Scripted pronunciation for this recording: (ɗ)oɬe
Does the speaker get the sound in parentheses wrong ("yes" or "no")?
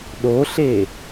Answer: no